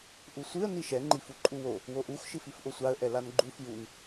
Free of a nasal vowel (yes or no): yes